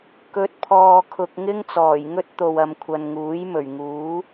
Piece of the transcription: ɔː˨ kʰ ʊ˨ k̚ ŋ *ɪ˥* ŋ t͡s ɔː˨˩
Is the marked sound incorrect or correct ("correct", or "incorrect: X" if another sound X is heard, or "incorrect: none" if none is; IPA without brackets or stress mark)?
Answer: correct